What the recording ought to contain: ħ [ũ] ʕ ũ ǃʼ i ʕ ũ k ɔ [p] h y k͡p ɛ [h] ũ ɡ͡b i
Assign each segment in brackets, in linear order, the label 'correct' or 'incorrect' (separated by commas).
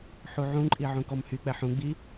incorrect, incorrect, incorrect